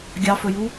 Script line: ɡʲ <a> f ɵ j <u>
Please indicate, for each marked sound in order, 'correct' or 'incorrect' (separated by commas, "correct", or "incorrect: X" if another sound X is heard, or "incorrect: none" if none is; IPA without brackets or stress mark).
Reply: incorrect: ɑ, correct